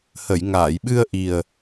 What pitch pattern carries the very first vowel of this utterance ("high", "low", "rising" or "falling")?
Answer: low